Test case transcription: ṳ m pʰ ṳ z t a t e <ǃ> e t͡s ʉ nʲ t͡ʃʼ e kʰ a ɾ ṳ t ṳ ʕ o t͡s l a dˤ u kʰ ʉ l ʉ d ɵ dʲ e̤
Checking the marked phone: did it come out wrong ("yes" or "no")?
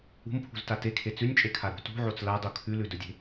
yes